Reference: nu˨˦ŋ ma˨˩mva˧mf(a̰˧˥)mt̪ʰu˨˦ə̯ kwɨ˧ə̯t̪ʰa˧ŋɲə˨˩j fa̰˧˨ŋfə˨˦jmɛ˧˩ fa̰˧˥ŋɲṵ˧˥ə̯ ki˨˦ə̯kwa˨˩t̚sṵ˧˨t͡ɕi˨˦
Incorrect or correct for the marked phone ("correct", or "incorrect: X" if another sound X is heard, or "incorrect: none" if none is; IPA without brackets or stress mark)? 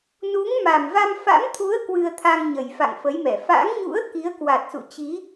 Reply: correct